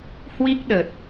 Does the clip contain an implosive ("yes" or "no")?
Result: yes